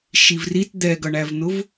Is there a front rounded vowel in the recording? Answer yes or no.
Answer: no